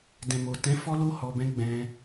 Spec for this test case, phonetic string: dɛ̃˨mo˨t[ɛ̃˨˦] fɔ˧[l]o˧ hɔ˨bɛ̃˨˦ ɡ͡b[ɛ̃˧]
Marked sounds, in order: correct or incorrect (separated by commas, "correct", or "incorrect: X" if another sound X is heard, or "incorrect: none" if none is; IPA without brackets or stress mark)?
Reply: correct, correct, correct